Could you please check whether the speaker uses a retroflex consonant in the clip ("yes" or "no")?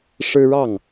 yes